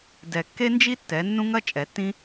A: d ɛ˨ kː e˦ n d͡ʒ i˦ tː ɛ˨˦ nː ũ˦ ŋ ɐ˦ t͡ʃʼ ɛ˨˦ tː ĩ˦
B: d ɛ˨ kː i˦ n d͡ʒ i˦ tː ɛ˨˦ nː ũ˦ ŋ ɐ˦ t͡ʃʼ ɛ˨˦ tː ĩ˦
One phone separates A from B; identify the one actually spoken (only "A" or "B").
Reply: A